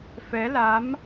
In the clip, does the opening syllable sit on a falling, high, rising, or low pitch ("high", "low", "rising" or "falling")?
rising